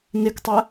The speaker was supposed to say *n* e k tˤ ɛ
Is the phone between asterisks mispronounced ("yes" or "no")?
no